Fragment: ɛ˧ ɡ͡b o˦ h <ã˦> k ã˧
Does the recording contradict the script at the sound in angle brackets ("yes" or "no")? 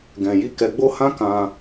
no